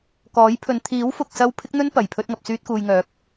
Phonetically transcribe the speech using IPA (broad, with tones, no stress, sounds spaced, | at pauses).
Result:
k ɔː˨˥ j pʰ ɵ˨˧ n t̪ʰ iː˨˥ w f ʊ˨ k̚ s ɐ˧ w pʰ ɪ˥ k̚ n̪ ɵ˥ n p ɐ˨˩ j pʰ ɵ˧ t̚ ŋ ɐ˨ p̚ s yː˧ t̚ k uː˨ j ŋ œː˨˥ k̚